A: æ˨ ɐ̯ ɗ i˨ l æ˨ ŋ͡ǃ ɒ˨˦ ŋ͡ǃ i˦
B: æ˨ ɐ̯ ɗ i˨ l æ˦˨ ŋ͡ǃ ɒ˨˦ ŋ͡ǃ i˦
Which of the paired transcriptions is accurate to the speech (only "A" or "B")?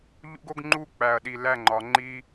B